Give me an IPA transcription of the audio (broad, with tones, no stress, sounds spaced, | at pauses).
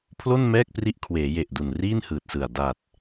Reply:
pʰ l o˥˩ n m ɛː˥˩ k̚ p r i˦˥ ʔ kʰ w eː˩˦ j e˨˩ ʔ d u˨˩ n r iː˥˩ n h ɯː˨˩ t̚ s ɯ˨˩ a̯ d a˨˩ t̚